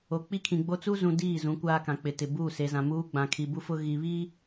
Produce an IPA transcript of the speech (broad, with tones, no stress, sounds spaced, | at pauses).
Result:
o˨ k͡p i˦ kʰ ĩ˨ ɡ͡b o˦ t͡s u˦ z ũ˨ d iː˦˨ z ũ˨˦ kʷ aː˦ k ã˨ k͡p ɪ˨ t ɪ˨ b uː˦˨ s e˨ z ã˨ m uː˦ ɡ͡b ã˨ kʰ i˨ b u˦ f ʊ˦ ɣ i˨ β i˦